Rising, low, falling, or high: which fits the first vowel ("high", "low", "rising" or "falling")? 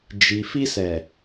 low